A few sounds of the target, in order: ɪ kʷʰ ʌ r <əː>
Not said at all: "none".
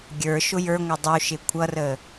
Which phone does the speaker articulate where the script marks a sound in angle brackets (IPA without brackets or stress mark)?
əː